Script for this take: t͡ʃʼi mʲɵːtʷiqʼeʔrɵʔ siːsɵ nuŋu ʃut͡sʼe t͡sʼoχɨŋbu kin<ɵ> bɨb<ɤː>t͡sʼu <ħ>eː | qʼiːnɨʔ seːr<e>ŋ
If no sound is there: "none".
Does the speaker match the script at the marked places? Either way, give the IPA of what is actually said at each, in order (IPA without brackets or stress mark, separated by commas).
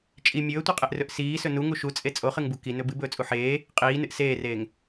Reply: ɵ, ɵː, ħ, eː